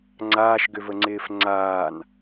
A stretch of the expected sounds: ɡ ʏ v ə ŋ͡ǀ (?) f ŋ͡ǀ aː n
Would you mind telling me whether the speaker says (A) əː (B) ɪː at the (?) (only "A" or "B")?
B